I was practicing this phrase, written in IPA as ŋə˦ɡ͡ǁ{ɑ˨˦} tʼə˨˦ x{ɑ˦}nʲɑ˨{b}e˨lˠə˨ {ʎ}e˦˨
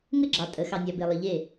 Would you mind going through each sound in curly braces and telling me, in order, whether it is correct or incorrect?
incorrect: ɑ˨, incorrect: ɑ˨, correct, correct

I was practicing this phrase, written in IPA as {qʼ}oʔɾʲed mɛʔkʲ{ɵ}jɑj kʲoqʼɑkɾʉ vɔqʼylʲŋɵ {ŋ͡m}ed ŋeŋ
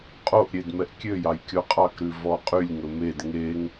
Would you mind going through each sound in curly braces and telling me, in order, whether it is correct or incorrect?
correct, incorrect: ø, incorrect: m

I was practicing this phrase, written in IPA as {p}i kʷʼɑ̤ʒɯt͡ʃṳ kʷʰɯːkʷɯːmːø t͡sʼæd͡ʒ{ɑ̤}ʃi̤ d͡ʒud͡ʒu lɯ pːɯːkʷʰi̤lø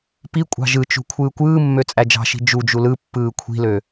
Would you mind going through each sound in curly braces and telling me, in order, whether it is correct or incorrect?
correct, correct

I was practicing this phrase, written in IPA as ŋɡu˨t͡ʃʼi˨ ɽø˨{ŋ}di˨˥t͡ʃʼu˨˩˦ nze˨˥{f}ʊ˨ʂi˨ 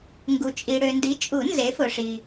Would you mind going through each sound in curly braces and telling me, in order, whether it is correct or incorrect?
incorrect: n, correct

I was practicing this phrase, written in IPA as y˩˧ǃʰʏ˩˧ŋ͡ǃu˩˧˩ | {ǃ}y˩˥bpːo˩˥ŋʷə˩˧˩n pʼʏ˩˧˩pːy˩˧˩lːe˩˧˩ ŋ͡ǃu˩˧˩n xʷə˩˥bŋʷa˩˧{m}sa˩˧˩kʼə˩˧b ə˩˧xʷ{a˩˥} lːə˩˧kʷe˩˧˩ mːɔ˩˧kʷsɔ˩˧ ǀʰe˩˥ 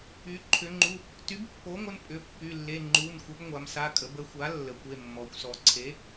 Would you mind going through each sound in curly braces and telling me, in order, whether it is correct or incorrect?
incorrect: t, correct, correct

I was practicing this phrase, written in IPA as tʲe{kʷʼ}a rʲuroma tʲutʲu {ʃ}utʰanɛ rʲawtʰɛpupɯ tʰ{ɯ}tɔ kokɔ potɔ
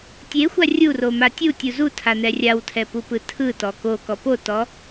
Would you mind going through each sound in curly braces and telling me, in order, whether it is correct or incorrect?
incorrect: xʷ, incorrect: z, correct

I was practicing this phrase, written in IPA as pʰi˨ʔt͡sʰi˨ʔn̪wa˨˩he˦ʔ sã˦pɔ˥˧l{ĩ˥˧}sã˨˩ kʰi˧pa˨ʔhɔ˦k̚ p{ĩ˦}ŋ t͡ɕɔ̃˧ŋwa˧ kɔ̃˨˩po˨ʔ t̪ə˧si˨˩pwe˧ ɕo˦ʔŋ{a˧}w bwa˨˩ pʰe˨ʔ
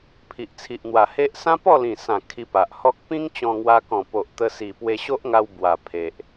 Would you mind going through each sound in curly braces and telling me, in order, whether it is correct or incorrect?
incorrect: ĩ˨˩, correct, correct

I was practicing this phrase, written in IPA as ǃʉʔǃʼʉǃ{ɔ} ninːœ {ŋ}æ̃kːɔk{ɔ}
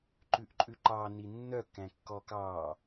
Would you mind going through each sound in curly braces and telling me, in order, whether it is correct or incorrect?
incorrect: ɑ, incorrect: k, incorrect: ɑ

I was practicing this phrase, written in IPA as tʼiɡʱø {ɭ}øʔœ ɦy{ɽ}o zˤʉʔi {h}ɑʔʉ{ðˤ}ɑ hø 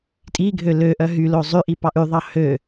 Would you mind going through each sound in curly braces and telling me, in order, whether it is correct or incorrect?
incorrect: l, incorrect: l, incorrect: p, correct

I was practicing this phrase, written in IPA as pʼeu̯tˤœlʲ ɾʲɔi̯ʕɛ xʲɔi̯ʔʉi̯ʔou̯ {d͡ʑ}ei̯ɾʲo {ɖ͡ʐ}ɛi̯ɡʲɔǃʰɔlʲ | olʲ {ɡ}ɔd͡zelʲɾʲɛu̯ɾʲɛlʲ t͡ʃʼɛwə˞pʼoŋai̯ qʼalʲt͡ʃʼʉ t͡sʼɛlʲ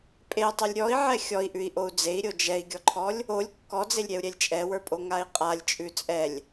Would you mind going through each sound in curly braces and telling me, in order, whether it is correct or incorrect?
incorrect: d͡z, incorrect: d͡ʒ, incorrect: kː

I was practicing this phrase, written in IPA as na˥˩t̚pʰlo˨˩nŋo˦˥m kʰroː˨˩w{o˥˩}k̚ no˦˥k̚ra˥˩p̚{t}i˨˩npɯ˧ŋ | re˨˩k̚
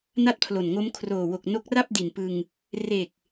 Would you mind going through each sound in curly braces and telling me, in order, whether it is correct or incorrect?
incorrect: o˨˩, incorrect: d

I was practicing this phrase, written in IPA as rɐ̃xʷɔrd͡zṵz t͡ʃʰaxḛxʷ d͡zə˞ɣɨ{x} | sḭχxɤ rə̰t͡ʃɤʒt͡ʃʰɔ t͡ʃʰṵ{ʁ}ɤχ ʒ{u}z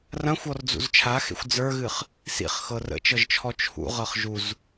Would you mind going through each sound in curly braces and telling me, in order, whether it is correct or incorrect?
incorrect: χ, correct, correct

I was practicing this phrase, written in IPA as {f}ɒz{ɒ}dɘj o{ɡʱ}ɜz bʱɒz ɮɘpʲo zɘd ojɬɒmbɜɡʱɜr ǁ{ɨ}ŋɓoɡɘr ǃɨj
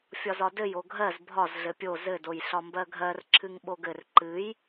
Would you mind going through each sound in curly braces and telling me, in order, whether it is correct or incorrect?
incorrect: fʲ, correct, correct, correct

